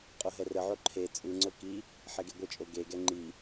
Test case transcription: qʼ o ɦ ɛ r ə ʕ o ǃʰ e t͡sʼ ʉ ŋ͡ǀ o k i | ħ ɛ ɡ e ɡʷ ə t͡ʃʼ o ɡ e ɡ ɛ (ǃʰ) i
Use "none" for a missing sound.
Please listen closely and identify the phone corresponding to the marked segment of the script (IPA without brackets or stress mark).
ŋ͡ǃ